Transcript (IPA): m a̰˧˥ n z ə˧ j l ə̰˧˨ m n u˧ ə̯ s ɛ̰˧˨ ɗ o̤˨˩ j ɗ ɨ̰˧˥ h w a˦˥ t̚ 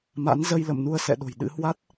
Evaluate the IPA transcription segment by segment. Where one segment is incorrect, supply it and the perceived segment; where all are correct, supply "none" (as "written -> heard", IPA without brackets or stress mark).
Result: none